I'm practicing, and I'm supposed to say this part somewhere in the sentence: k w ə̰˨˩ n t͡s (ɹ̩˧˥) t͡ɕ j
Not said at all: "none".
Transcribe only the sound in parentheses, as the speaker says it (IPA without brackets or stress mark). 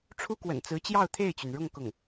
ɹ̩˧˥